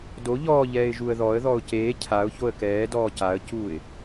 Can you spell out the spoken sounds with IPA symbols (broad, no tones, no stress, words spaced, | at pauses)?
do ʎɔːʎɛːɪ̯ ʒuə̯ðɔə̯ðɔʊ̯ ceː cʰaʊ̯ çoə̯kɛː dɔːcaə̯cuːɪ̯